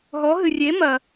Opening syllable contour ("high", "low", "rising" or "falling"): rising